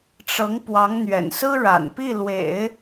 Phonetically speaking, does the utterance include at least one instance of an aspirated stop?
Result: no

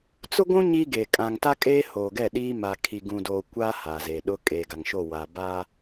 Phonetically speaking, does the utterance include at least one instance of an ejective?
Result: yes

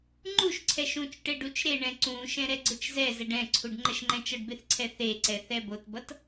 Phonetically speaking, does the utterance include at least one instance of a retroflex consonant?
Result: yes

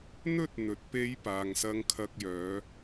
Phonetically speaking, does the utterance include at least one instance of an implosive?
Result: no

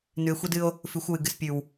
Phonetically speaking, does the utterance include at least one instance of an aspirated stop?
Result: no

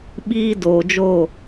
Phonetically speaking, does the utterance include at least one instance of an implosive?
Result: yes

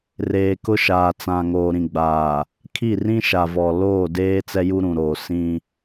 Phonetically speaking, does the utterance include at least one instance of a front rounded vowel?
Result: no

